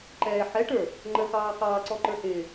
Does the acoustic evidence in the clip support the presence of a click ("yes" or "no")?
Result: yes